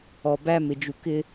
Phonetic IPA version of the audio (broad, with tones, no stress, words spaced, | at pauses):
ɔ˨ bæ˦mɪ˨d͡ʒu˨ kɪ˦